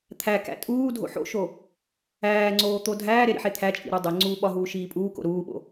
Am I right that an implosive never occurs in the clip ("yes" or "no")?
no